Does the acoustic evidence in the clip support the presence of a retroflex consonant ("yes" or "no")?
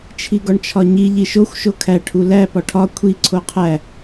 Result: yes